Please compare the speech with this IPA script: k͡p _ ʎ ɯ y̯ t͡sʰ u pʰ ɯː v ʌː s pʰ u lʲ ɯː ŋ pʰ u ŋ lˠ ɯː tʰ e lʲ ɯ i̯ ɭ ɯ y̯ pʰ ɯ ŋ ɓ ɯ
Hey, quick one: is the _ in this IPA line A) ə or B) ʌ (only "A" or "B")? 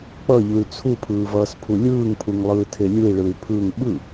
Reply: B